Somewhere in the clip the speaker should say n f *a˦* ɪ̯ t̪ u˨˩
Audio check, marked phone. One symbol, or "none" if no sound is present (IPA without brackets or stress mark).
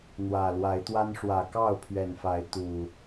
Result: a˨˦